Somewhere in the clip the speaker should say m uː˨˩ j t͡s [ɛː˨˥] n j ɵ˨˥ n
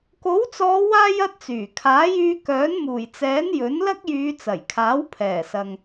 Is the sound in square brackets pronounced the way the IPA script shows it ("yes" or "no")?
yes